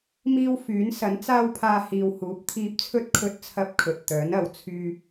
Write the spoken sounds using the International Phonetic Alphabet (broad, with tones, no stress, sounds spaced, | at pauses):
m iː˥ w f yː˨˥ n s ɐ˨˥ n t͡s aː˥ w pʰ aː˧ h iː˨ w h uː˨˥ p̚ t̪ʰ iː˧ p̚ t͡sʰ ɵ˥ t̚ kʰ ɵ˥ t̚ t͡sʰ ɐ˥ p̚ kʰ ɵ˨ t̚ t̪ œː˨˥ n ɐ˨˩ w t͡sʰ yː˧